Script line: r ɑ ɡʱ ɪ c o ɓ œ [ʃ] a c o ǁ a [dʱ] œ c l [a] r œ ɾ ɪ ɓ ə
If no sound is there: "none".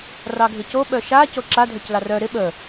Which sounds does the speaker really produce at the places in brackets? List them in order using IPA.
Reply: ʃ, dʱ, ɑ

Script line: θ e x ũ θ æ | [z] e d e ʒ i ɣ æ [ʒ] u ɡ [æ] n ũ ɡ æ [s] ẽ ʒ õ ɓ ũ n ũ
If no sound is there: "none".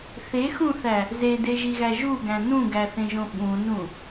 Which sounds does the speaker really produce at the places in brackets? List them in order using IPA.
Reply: z, ʒ, æ̃, θ

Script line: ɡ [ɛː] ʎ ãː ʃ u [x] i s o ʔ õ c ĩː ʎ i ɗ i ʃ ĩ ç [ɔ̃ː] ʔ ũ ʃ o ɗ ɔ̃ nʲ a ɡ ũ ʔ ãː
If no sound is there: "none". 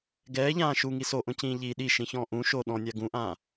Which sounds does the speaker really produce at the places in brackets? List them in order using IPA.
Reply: ɛː, ŋ, ɔ̃ː

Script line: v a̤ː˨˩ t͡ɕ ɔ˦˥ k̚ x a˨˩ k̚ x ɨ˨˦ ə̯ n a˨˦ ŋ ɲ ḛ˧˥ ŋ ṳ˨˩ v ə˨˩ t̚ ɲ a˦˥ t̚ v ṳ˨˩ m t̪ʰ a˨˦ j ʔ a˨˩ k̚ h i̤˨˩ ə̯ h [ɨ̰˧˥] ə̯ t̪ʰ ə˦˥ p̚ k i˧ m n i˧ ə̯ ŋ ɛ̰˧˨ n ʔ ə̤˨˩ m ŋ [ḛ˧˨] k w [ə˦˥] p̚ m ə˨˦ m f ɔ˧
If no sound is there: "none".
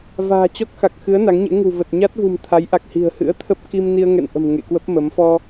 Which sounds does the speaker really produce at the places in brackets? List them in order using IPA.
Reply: ɨ̰˧˥, ḛ˧˨, ə˦˥

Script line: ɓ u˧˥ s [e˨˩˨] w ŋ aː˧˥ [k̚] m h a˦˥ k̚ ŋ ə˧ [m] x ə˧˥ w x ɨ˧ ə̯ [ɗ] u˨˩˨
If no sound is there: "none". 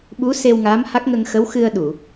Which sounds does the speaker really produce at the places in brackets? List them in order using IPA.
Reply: e˧, none, ŋ, ɗ

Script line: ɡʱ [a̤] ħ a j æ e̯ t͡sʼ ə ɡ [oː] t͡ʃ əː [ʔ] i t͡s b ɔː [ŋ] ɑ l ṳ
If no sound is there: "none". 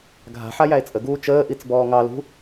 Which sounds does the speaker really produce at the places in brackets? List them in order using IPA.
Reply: a̤, uː, ʔ, ŋ

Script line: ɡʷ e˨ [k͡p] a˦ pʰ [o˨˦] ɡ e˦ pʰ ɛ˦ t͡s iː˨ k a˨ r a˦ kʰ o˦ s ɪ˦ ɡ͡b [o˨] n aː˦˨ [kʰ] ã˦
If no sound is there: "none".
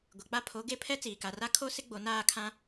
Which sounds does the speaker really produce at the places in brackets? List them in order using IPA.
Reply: k͡p, o˨˦, o˨, kʰ

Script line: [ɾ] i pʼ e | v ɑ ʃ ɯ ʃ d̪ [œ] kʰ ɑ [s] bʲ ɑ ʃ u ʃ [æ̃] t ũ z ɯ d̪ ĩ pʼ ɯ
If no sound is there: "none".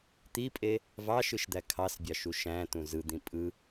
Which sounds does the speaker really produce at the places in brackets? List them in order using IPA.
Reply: t̪, æ, s, æ̃

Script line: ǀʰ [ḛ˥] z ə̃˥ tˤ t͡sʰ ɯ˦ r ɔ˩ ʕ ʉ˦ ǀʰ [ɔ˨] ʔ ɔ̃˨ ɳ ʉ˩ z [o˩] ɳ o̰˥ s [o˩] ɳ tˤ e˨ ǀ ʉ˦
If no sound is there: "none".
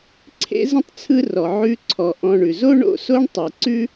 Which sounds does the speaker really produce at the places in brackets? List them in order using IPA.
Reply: ḛ˥, ɔ˨, o˥, o˥

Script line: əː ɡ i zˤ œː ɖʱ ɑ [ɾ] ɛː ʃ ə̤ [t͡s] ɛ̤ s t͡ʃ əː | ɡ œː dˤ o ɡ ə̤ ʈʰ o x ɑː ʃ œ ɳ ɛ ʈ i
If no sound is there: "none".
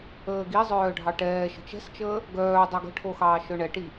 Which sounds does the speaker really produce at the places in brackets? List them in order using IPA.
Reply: ʈ, t͡ʃ

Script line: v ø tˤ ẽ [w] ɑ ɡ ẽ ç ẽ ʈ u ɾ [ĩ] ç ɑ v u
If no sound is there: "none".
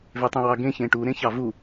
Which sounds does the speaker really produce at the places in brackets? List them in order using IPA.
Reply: w, ẽ

